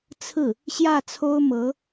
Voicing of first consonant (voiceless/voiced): voiceless